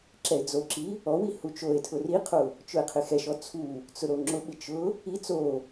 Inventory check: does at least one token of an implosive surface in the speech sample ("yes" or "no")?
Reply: yes